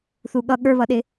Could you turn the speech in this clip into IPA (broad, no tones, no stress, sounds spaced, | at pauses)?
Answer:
θ u ɠ ʌ ɠ ə˞ β ʌ ɗ ɪ